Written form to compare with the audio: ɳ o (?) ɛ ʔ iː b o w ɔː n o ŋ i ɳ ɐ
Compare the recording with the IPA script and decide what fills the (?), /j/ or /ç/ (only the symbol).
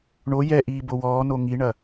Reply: j